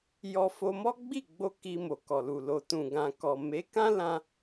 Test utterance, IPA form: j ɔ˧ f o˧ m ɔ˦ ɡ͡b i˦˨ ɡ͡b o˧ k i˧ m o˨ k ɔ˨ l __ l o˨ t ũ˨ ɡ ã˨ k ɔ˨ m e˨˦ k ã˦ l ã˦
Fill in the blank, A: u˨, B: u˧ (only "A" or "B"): A